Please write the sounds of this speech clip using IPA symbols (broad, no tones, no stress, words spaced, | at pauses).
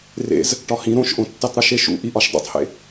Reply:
rḛz | ʈɒhĩ ɾõʃʔõtːitˤ ɾuʃeʃṵ ʔiʔɒʃdˤṵtˤhḛ